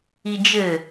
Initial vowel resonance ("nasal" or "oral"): oral